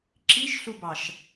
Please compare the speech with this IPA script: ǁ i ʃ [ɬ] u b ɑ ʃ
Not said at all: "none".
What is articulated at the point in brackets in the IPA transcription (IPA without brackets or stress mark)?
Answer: ɬ